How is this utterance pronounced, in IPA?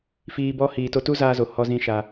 f iː˧ b ɔ˦ h iː˨ t o˧ t u˦ z aː˧ z o˨ h ɔ˦ z ĩ˦ ʃ a˧

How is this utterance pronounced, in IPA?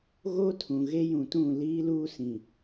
ɣ o˦ tʰ ũ˨ ɣ e˦ j ũ˨ t ũ˦˨ l iː˦ l uː˦ s ĩ˨

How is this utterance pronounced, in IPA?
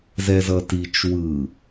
z ɛ z ʌ t i t͡ʃ w ɯ

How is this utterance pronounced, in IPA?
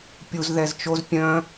pʲ u z ð ɛ z t͡ʃ o z pʲ œ̃

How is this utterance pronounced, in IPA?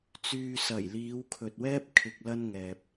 t͡s yː˨ s ɐ˨˩ j l iː˨˧ w kʰ ɵ˨ t̚ w ɛː˥ p̚ kʰ ɪ˨ k̚ l ɐ˧ n ŋ ɛː˧ p̚

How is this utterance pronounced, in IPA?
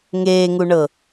ŋ eː ŋ u ɳ ɤ

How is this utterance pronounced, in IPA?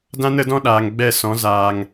d ã˦ n ə˨˦ d ɔ̃˦ ɗ aː˨ ŋ ɡ͡b ɛ˦˨ s ɔ̃˨˦ z aː˨ ŋ

